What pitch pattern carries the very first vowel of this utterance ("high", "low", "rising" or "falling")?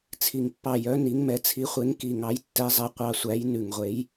low